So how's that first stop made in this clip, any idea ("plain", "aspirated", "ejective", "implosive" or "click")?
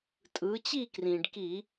ejective